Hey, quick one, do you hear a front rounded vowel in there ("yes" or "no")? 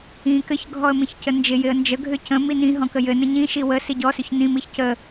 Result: yes